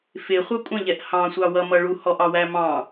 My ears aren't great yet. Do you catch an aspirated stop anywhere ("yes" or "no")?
no